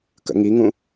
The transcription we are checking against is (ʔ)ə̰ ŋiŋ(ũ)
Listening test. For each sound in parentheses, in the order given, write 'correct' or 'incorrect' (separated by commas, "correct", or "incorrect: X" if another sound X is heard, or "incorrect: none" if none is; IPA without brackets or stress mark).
incorrect: k, correct